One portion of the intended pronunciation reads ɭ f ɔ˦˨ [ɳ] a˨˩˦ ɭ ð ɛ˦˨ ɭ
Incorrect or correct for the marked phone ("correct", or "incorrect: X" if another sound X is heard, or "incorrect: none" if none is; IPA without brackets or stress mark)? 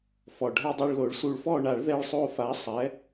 correct